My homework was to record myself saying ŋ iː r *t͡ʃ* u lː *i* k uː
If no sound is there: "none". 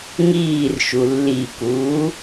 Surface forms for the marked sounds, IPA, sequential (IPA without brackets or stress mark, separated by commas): ʃ, i